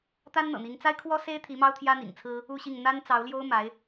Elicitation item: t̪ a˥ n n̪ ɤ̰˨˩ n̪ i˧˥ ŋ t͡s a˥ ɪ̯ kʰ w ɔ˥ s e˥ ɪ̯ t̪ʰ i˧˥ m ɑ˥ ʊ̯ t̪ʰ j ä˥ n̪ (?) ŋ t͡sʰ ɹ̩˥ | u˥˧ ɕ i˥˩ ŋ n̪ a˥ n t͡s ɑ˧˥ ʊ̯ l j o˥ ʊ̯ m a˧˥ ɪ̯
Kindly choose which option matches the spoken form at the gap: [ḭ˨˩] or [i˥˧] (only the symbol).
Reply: ḭ˨˩